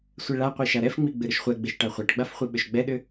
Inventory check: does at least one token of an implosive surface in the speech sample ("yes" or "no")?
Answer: yes